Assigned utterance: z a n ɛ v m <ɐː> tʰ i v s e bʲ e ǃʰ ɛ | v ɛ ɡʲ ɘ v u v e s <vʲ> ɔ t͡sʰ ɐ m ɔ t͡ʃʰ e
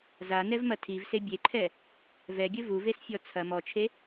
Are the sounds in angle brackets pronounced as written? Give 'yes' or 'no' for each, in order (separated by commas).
no, no